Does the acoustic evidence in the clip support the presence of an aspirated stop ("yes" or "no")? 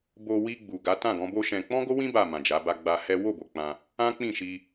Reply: no